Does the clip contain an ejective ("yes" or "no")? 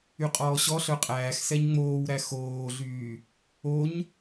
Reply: yes